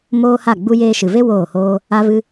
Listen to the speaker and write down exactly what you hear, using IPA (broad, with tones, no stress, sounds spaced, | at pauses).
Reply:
m oː˦ h a˦˨ ɡ͡b u˧ j eː˧ ʃ ɨ˨ v e˦ w oː˦˨ h oː˦ | a˦ v ɨ˦